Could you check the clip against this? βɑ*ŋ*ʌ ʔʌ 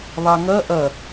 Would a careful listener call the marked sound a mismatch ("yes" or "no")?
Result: no